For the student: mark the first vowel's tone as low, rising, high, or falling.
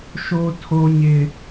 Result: high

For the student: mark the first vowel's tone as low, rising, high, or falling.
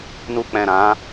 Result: low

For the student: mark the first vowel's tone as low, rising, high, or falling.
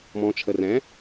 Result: low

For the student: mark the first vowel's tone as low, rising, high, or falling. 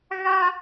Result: high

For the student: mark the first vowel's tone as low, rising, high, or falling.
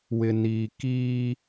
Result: low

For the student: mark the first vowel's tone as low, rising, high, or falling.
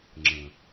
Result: low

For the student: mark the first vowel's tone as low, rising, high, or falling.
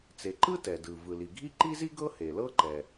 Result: low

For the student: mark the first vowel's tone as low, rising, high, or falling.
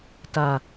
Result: low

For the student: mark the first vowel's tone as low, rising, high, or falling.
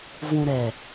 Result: low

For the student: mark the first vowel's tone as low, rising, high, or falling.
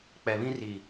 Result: low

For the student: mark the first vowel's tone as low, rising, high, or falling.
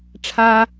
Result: high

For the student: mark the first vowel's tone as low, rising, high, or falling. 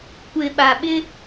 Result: low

